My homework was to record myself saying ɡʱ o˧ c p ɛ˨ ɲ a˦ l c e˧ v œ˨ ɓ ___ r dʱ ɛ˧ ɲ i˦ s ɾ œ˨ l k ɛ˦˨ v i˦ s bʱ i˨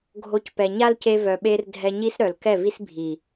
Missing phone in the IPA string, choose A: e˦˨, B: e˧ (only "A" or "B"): B